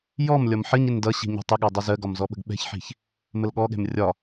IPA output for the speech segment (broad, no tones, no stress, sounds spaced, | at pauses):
j ɔ m lʲ ɒ m ħ ə ɲ ɪ n d ʌ ɕ i̤ ɲ ɛ̤ tˤ ɪ ɠ ɑ dˤ ə z ɜ ɡ ɒ m z ɔ ɓ ə̤ ɡ ɓ ɛ̤ ç ħ i̤ ç | m ə l ɠ ɔ ɠ ɛ̤ m rʲ ɒ